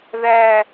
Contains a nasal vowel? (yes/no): no